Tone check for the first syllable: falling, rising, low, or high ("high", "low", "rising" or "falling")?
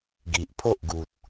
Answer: low